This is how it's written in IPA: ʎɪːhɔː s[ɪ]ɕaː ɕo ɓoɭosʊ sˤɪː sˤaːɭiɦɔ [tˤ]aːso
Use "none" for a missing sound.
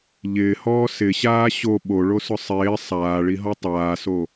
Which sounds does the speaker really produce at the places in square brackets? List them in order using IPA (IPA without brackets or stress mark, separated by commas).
ɪ, tˤ